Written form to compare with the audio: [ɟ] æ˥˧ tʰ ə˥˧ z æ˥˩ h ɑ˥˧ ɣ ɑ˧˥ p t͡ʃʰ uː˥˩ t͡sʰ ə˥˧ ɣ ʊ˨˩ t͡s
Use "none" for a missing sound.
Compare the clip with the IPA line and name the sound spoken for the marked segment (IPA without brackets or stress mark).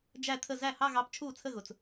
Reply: d͡ʒ